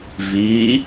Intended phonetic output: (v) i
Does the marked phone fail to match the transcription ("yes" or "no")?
no